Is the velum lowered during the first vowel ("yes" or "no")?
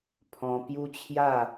yes